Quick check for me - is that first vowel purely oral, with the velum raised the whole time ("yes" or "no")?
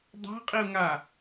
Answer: yes